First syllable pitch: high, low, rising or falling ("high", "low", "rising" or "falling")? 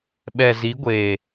low